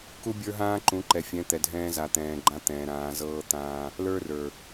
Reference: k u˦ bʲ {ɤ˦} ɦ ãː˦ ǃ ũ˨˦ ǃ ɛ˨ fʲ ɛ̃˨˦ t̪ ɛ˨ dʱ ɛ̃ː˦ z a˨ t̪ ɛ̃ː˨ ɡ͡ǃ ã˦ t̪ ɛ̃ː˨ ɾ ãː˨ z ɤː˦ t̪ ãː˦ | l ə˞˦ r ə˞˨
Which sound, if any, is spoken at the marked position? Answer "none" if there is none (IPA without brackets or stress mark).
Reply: ə˞˦